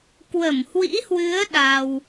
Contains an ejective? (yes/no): no